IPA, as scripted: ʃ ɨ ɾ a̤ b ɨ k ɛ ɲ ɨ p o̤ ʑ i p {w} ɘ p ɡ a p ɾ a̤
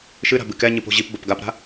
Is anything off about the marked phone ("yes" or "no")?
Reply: yes